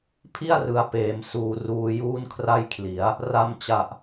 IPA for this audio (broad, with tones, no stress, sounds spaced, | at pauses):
pʰ i˥˩ a̯ r ɯ˩˦ a̯ p eː˩˦ m s uː˨˩ r uː˧ j uː˥˩ n kʰ r a˥˩ j kʰ l i˩˦ a̯ | r a˧ m t͡ɕ a˨˩ ʔ